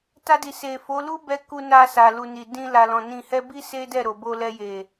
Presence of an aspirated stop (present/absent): absent